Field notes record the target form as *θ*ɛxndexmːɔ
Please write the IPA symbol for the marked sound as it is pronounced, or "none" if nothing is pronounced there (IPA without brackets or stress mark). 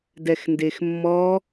d